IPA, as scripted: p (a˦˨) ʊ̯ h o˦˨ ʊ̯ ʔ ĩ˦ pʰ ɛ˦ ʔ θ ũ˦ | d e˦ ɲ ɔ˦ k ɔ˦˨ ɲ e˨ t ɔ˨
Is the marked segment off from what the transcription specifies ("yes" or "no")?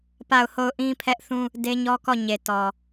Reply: no